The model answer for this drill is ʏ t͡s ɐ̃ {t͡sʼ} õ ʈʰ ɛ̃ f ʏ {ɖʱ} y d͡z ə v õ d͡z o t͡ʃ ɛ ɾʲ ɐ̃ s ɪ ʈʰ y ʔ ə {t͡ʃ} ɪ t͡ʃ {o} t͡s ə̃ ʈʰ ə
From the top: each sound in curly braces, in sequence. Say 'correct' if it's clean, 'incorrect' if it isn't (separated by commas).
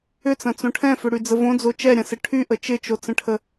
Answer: incorrect, incorrect, correct, correct